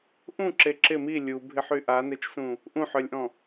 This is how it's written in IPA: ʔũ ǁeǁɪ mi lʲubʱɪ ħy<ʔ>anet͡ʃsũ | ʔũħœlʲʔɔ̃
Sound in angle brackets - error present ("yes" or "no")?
no